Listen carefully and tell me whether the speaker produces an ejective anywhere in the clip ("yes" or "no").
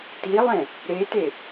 no